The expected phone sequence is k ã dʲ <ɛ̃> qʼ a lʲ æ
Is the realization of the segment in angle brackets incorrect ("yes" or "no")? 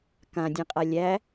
no